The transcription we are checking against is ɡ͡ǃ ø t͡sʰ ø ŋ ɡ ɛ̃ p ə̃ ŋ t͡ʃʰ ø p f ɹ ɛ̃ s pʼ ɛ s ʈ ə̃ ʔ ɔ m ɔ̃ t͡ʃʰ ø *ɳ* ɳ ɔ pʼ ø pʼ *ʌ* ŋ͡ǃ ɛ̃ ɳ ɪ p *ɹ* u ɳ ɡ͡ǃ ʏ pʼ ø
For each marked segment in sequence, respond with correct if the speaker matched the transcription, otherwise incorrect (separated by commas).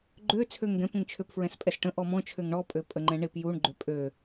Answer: incorrect, incorrect, incorrect